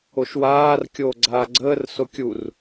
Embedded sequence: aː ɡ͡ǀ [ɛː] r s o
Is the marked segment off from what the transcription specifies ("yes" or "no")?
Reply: yes